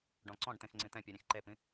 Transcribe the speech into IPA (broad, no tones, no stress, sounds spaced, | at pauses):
ɖ ɔ̃ ǀ ɔ̃ ɖ t̪ ẽ x ŋ͡ǀ ĩ t̪ ɛ̃ pʲ u ɾʲ ẽ x ǃ e p ĩ